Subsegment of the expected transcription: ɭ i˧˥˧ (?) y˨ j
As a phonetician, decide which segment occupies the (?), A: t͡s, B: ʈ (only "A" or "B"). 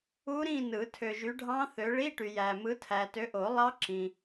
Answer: B